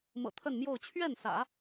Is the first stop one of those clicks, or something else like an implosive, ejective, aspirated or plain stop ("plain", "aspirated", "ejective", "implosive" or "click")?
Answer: aspirated